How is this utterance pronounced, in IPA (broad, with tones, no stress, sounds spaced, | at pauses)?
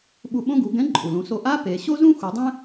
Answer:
ɓ u˧ ɓ õ˥ ɡ u˩˧ ɡ ɛ̃˧˥ ǃʼ u˩ l ũ˩˧ s o˧ ʔ a˥ p e˩˧ ɕ o˥ z ũ˥ x u˩˧ dˤ ɛ̃˥